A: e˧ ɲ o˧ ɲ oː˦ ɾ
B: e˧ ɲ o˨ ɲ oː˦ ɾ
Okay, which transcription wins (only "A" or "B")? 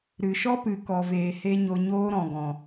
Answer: A